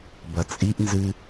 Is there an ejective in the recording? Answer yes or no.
yes